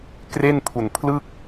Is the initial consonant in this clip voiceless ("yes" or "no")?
yes